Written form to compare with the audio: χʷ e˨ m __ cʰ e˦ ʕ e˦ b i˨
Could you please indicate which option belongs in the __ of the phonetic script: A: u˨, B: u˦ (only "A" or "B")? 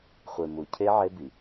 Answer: A